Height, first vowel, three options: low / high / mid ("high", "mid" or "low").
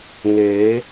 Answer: mid